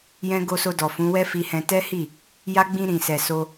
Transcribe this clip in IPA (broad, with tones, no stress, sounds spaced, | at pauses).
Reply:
j ɛ̃˦ ɡ o˧ s o˧ d ɔ˨ f ũ˨˦ w ɛ˦ f i˧ h ɛ̃˧ t ɛ˦ h i˦˨ | j a˦ ɡ͡b ĩ˧ ɾ ĩ˨ s ɛ˨ s o˧